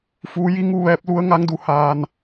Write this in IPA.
fuː˩˧ ji˧˥ŋu˥˨ʋɛː˧˥p̚ lu˧˥ə̯ŋa˧˥ŋdu˩˧haː˧n

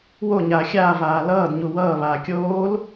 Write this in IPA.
woɲaː xʲaːvaː lʌːdɲu wʌː βaːkʲoːl

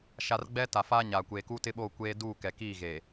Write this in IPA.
ʃa˨r ɡ͡bɛ˦ ta˨faː˦ɲaː˨ kʷeː˨kuː˦tɪ˦ɓoː˦˨ kʷeː˦ duː˦˨kɛ˨kiː˦˨ɣeː˨

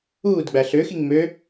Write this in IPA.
uːd ɡ͡bæɬøxiŋ mø

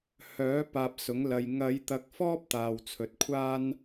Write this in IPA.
hœː˨˥ paː˧p̚sʊ˨˥ŋlɐ˧j ŋɐ˨˧j t̪ɐ˧k̚fɔː˥p̚t̪aː˨w t͡sʰɵ˨˥t̚kʷʰaː˥n

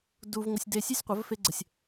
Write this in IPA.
du˧vŋʷɪ˧sʲ de˧sʲe˥sʲ qʷɐ˩˥vfe˧ɡ͡ǀə˩sʲ

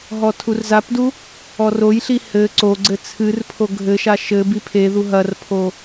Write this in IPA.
ɦɔtʰurzapdu | ɔrojɬi hɘ ǀoɡ͡ǀɘ t͡sʰɨrpʰo ɡʱɘʃa ʃɘ bipʰeðu ɦɐrpʰo

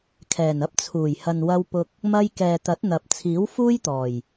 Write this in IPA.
kʰɛː˨˩nɐ˧p̚t͡sʰuː˨˩jhɐ˨n wɐ˧wpʊ˧k̚ | mɐ˧jkɛː˨ t̪ɐ˨˥t̚n̪ɐ˨p̚ t͡sʰiː˨˥wfuː˥jt̪ɔː˨˩j

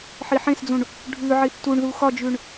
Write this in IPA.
ħiħẽsd͡zũɳ | ɖʱʉ ʕiθtuɳðu xɒd͡ʒʉɳ

